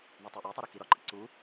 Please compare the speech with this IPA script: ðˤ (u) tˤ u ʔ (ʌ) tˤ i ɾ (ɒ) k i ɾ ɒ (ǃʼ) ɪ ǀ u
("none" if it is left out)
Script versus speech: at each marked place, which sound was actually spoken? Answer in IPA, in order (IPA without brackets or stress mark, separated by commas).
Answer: u, ɒ, ɒ, ǃʼ